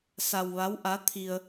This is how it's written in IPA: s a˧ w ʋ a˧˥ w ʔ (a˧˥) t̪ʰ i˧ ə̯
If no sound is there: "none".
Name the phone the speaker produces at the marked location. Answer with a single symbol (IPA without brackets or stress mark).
a˧˥